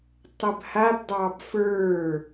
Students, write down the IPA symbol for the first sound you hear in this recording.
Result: tˤ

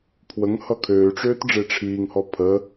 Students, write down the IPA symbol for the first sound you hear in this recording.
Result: pʰ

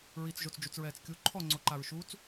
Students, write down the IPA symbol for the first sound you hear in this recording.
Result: ɹ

